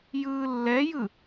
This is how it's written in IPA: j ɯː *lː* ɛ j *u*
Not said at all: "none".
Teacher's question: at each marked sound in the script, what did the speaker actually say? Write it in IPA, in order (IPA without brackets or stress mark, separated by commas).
lː, ɯ